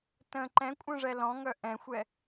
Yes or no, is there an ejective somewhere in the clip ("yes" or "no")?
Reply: yes